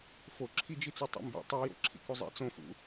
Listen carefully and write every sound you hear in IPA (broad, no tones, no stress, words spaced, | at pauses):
foǁʰid͡ʒit͡sɔ tˤo̰mbḭ tˤijo̰ ǁʰḭkuzˤḭ t͡sõfṵ